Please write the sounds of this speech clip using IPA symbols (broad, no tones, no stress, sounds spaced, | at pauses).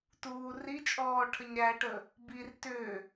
t uː r i t͡ʃʼ ɔː ʈʰ ə ɲ ɾ æ ʈ ə | b i r t ʏ